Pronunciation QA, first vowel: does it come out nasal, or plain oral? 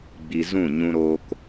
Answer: oral